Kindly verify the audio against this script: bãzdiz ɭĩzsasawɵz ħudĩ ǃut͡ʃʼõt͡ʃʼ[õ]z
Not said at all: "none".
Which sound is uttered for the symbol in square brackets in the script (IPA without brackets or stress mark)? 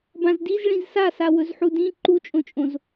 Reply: õ